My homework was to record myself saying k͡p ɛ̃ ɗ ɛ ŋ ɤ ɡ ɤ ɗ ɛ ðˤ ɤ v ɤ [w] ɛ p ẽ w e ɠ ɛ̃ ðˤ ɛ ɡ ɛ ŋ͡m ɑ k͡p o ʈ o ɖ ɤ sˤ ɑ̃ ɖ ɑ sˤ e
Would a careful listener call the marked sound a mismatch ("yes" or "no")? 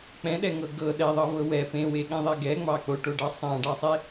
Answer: no